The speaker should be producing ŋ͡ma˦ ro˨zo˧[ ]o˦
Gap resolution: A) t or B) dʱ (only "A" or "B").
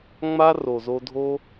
B